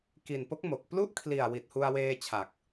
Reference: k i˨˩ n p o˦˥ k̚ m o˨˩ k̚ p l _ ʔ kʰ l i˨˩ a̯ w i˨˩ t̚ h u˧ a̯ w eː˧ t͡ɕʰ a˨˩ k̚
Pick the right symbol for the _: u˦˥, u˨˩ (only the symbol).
u˦˥